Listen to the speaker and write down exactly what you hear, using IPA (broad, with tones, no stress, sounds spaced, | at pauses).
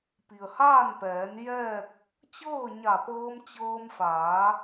p i˩ ə̯ h aː˥˨ n p ɛː˩˧ n j ɛː˥˨ k̚ | t͡ɕ ɤː˥˨ ɲ a˧˩ p ɤː˧ m t͡ɕ ɤː˧ m f aː˩˧